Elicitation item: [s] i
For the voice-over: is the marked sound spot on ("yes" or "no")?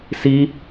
yes